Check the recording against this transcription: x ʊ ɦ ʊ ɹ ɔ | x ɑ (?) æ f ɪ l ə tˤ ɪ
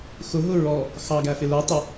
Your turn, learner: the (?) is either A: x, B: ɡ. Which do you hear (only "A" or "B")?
B